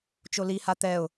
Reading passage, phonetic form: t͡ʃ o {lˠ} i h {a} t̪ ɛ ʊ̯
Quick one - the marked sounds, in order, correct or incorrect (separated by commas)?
incorrect, correct